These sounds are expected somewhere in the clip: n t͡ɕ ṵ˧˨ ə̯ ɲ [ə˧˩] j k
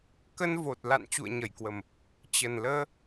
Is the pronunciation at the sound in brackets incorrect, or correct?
correct